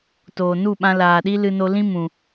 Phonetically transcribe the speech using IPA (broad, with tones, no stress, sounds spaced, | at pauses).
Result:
t oː˨ n u˦˨ ɓ ã˧ l aː˨ ɗ i˦ l ɨ˧ n o˧ l ĩ˦ m ũ˨